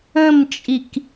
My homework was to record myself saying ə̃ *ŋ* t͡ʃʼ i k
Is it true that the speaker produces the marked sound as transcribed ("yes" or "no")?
no